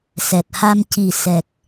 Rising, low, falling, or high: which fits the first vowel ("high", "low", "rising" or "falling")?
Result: low